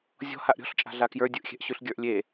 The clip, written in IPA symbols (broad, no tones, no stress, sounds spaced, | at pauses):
zʲ ɔ̤ h a ʔ ɾʲ ɔ̤ ɬ t͡ʃʼ a̤ ɮ a k j ə˞ dʲ ɯ ʔ xʲ ɛ̤ ʔ ɕ ʉ ɬ ɡʲ ə˞ ʔ lʲ e